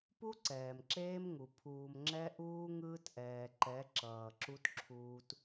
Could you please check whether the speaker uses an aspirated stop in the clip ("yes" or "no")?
yes